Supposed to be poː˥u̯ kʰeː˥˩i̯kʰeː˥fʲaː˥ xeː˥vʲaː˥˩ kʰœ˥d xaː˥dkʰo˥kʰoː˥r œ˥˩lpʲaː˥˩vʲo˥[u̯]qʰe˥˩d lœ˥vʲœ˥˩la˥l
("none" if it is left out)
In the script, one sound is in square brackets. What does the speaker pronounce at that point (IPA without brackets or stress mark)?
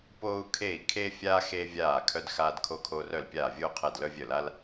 u̯